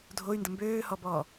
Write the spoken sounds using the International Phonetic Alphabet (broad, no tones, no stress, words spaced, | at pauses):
dʱoy̯ndə mbøːhɔbɔː